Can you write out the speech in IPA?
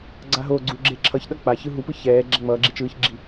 ɡ͡ǀ a ɦ o ɡ͡ǀ u ɡ͡ǁ e ǁʰ ʌ ç ɗ ʌ k͡p a ç ɯ ɦ u p ɯ ç ɛː ɡ͡ǁ ɛ ŋ͡m ʌː ɡ͡ǁ i t͡ʃ ɯː ç ɡ͡ǁ i

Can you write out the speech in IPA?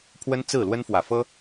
pʰ w ə˦ n t͡s ɹ̩˥˨ l w ə˦ n f w ä˨ f ɤ˦

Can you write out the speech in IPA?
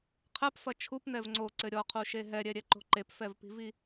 qʰ ɛ p f ɐ t͡ʃʰ u p n ɛ v ŋ͡ǀ o ǀ ɘ ɾʲ ɔ qʰ u ʃ e ɦ ɛ ɾʲ ɛ ɾʲ ɛ ǃ o̤ ǃ e p f ɛ v p i̤ v i

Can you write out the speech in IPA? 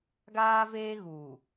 ɡ aː˦ v eː˦ ɣ uː˨

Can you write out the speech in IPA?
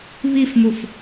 β i f m u f

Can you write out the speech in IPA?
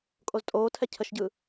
kʼ o z tʼ oː tʰ ɛ cʰ ə ʃ ɟ ɯ

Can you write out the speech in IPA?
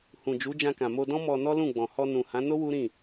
h ũ˨ d͡ʒ u˨˦ d͡ʒ ã˧ k ã˨ m o˧ d ɔ̃˦ m ɔ˧ n ɔ˦ l ũ˦˨ ɡ͡b ɔ̃˨ h ɔ˧ n ũ˨ h ã˨˦ n o˦ w u˦ ɾ ĩ˦˨

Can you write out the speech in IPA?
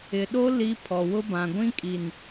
ɪ˨ ɗ o˦ l i˦ pʰ ɔ˨ w ʊ˦ b ã˨ ɡʷ ĩ˦ kʼ i˨ n

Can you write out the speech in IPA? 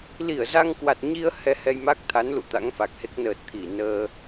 l i˧˩ ə̯ z a˧ ŋ k w a˨˩ t̚ ɲ i˧ ə̯ h ɛ˧ h ɛ˧ j m a˦˥ k̚ t̪ʰ a˨˦ n l ṵ˧˨ t̪ a̰˧˥ ŋ f a˨˩ k̚ h e˦˥ k̚ n əː˨˩ t̚ t̪ʰ i˧˩ n əː˧

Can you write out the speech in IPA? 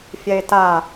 fʲ ɛ e̯ t a

